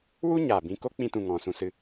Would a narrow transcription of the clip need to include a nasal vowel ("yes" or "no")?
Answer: yes